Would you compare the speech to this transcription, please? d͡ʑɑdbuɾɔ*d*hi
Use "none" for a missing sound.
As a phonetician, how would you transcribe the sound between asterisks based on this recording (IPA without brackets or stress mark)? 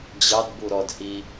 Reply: d